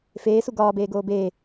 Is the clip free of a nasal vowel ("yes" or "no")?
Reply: yes